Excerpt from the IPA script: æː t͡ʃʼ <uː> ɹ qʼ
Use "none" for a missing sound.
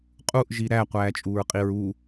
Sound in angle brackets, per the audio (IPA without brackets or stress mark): uː